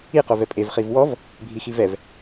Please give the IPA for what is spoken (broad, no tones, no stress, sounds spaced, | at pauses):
i q o v ɛ pʼ e v χ i v w ɔ v | bʱ i x i v ɛ v